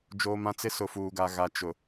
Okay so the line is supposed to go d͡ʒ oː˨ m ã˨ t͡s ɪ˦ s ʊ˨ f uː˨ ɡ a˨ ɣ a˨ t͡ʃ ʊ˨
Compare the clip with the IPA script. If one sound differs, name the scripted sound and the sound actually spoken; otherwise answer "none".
none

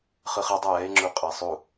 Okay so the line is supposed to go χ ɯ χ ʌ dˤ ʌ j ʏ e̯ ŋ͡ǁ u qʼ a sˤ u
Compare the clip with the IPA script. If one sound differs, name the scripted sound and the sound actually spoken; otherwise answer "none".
ʏ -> ɛ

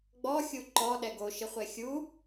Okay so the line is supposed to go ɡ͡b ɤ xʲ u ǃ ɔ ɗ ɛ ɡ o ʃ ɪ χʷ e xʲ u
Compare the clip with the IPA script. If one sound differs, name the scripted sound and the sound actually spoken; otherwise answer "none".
ɤ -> ɔ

